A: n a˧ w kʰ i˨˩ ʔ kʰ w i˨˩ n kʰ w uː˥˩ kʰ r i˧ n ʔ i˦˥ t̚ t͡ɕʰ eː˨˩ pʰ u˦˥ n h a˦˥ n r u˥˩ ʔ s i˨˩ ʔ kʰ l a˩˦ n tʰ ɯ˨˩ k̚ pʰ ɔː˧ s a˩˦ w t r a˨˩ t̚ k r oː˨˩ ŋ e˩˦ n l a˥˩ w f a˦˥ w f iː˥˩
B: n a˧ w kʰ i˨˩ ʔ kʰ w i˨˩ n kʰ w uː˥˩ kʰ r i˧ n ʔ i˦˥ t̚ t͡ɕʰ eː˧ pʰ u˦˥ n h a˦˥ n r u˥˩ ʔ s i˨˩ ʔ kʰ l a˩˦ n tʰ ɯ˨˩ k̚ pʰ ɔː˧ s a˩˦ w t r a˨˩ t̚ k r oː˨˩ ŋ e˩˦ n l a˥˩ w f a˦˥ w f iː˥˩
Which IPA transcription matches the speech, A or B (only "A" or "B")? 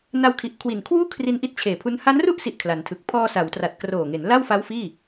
A